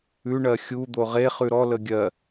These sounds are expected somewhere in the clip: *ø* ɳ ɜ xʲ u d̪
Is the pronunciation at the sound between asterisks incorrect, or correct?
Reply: incorrect